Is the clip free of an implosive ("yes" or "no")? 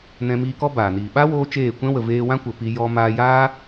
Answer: no